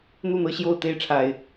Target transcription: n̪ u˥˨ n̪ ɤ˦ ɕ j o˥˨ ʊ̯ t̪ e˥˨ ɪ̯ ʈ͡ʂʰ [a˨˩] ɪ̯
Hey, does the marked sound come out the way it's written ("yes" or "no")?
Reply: yes